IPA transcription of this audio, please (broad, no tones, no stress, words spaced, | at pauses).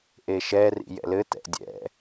ʔeʃɛ rḭjɛ̰lɘ tɛ̰dʲɛ̰